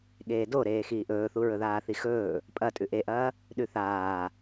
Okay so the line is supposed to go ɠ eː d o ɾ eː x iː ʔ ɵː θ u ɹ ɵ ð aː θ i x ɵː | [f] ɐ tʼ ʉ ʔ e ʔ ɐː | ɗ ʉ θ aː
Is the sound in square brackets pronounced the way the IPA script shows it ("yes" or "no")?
no